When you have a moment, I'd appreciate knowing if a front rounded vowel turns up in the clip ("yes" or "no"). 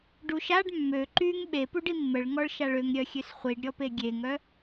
yes